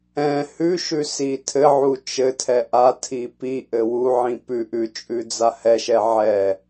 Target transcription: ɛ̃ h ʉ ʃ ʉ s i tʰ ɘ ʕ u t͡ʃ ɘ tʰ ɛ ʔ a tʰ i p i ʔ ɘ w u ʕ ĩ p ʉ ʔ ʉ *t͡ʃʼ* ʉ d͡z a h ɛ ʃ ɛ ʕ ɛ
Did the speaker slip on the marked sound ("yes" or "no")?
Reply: no